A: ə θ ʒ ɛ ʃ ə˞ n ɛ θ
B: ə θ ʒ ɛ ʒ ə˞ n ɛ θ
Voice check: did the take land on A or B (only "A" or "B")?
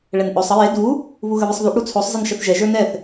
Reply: B